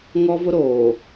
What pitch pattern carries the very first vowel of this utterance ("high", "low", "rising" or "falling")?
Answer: high